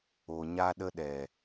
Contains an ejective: no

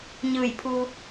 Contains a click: no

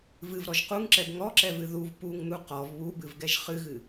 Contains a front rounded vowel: no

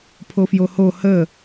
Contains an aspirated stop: yes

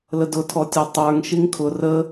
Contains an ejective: no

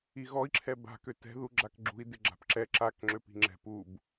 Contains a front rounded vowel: yes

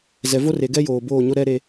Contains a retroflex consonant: no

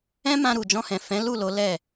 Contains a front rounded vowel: no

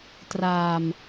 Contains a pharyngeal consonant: no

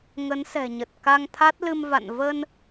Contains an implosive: no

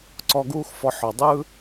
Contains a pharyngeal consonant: yes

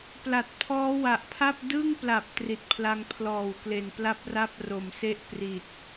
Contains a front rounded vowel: no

